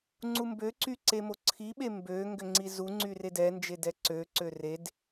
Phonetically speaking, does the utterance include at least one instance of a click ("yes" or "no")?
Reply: yes